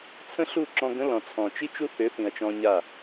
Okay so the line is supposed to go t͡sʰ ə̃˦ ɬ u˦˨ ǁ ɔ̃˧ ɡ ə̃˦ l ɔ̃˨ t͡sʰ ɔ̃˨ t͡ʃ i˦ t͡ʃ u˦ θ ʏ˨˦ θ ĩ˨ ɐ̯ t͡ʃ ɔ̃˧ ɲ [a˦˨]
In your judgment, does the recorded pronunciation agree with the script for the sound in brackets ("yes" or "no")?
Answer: yes